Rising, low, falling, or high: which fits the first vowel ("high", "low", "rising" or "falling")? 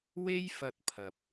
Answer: high